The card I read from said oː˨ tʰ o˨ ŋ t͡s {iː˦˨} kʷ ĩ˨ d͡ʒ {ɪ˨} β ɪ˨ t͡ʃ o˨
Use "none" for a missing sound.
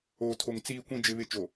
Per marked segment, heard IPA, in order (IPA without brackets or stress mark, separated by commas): iː˨, ɪ˨